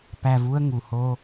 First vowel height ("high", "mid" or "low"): low